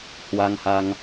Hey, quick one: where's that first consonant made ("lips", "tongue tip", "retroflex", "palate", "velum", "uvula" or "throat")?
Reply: throat